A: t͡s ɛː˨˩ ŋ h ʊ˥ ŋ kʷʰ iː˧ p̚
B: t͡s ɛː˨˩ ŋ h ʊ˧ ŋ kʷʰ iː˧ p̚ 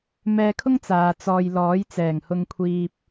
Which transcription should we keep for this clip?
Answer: B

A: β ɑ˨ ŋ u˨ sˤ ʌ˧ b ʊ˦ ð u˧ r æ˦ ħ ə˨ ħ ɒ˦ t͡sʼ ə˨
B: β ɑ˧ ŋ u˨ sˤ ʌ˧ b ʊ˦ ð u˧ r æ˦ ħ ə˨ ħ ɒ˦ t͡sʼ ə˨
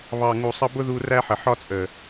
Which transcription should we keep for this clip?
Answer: A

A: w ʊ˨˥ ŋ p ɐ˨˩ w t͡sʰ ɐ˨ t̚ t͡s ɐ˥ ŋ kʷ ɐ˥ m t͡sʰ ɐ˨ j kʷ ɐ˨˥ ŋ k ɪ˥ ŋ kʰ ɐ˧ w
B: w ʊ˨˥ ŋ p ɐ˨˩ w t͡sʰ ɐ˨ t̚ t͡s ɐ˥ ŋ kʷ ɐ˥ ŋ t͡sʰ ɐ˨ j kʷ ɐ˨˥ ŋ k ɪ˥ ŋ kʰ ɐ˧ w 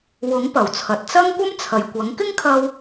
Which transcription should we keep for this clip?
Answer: A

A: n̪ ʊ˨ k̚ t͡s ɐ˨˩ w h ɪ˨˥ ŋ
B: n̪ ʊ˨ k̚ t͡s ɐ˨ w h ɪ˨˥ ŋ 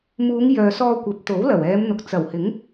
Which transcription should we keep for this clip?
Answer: A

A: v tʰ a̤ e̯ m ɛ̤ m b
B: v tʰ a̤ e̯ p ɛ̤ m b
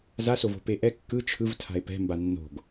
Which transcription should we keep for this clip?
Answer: B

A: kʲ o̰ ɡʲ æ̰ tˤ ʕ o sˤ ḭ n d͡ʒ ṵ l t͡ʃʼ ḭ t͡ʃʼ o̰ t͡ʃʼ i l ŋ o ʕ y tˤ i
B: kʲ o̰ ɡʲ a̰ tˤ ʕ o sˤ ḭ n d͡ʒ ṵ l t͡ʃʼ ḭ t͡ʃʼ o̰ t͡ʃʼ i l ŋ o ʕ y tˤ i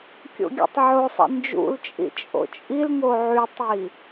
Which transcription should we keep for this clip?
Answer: B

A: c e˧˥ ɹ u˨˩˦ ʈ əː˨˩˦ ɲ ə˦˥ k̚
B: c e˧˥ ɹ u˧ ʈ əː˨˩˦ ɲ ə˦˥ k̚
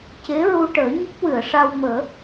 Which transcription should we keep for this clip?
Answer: B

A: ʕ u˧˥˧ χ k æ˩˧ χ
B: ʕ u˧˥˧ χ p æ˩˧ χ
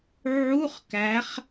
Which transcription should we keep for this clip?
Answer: A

